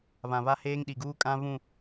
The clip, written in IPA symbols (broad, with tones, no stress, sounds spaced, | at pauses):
β ã˨ β a˦ h eː˦ ŋ ɗ i˨ ɡ uː˦ kʼ ã˦ β ũ˦˨